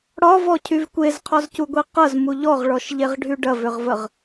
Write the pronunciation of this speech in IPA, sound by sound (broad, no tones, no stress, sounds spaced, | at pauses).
ɽ ɒ v ɔ cʰ y v kʷ e z qʰ ɒ z c u ɡʷ i q ɐ z m u ʎ ɔ ʁ ɭ ɔ ʃ ʎ e ʁ ɖʱ y ɖ ɐ v ʏ ʁ v ə ʁ